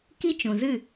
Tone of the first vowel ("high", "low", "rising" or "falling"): high